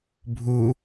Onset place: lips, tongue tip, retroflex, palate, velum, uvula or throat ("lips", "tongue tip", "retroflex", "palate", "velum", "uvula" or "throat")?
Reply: lips